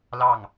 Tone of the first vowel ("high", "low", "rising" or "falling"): falling